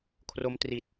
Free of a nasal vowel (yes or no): yes